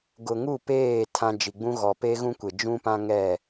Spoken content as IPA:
ɡʊ˨ŋu˦˨peː˦˨ tʰã˦ d͡ʒi˨ɡ͡bũ˦ ɣɔ˨pe˦ɣũ˦kʷe˨ d͡ʒũ˦pã˦ ŋɛ˦˨

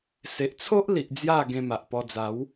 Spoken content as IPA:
se˨ʔt͡sʰo˦ʔli˨ʔ d͡zja˥˧ ɡẽ˧ma˨ʔ pɔ˧d͡za˨˦w

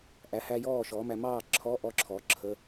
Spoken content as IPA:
ʔæ˩˥hæ˧ jɔː˥˩ʃɔ˩˥mæ˧ mɑː˥˩ǁʰɔ˧˥˧ʔɔ˧ǁʰɔ˩˥ ǁʰə˧˥˧

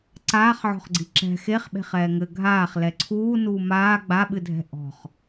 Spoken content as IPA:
ǀaːχʕɔ̤χɡ͡ǀi ǁɛ̤ xeχɓe̤χ ɛːŋɘ ɡʱaːχ lɛǀʰuː nuːmaː ɡ͡baɓɨdʱɛ̤ ʔɔ̤χ

